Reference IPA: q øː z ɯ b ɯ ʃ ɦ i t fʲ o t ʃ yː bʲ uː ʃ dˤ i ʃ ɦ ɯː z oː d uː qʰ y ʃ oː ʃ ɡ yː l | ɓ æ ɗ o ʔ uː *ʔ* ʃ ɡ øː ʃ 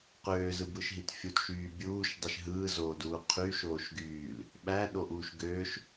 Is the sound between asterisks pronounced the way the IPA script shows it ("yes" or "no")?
no